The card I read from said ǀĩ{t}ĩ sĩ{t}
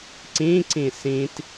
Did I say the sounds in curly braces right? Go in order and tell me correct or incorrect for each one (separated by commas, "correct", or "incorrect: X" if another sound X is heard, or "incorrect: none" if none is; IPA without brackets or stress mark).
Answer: incorrect: ǀ, correct